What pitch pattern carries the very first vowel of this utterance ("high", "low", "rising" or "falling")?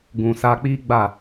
low